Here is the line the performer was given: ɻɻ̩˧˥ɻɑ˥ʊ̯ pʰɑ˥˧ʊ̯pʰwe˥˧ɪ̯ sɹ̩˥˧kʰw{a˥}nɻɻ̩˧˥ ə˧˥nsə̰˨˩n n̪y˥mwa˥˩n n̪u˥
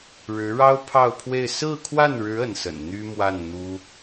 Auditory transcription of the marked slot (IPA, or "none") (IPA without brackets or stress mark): a˥˩